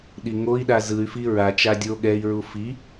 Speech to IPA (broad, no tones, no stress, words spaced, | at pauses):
ɗiŋoi̯ɗa zɯy̯fi ɹat͡ʃa dʲo ɠɛi̯ɹu fi